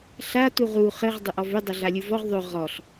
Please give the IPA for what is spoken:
ɬa tuʁu χɘʁ dˤʏʔɔvʏ dˤɐɮalʲuvɔʁ ðˤʏ ʁɔɬ

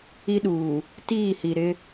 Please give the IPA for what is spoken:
i˦ɗuː˨ | tiː˦˨hi˨ɾɪ˦

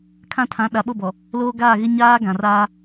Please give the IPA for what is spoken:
kʰã˦tʰã˨˦ ɗa˨ɓo˦˨bɔ˨ | loː˦ɡaː˦˨ɣɪ˦ ɲaː˦ɡã˨raː˦

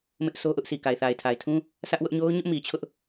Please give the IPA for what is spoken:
mɪ˦ʔso˦ ʔʊ˦ʔsʰi˨ ka˨ɪ̯θa˨ɪ̯tʰa˨ɪ̯tʰũ˦ | sʰä˦ʔwʊ˦ʔ ɲo˦ʊ̯ɲʊ˦ʔmi˨t͡ɕʰʊ˦ʔ

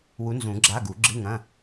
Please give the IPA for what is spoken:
wu˨˥nzũ˨˩˦ ɡ͡ǁa˧˥˧ ɡu˨˩˦ɡ͡ǁɨ˧˥˧ŋɐ̃˧˥˧

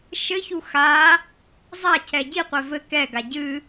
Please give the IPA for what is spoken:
ʃɘçu xa | zˤacʰɛ ɟiqʷɛ vɘ kɛɡa ɟɨ

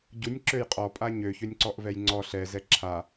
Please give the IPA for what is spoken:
ɟunʲǁøj qʼɔpʼa ɲøçønʲǀɔʔvɛj ŋ͡ǀɔ ɬɛzɛ ǁʰa

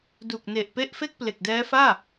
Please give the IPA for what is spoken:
du˨˩k̚ne˨˩ʔpe˦˥ʔ fe˥˩k̚ple˨˩k̚dɛː˦˥faː˥˩

